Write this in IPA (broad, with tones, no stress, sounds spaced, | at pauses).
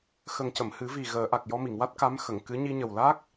x ə˨˩ ŋ c ə˨˩˨ m h ɨ˨˩˦ v i˨˩ ɣ əː˨˩˦ ʔ a˨˩ k̚ j ɔ˧ m i˨˩˨ ŋ w a˦˥ t̚ k a˧˥ m x ə˨˩˨ ŋ k ɨ˧˥ ɲ i˧ ɲ ə˨˩ w l aː˦˥ k̚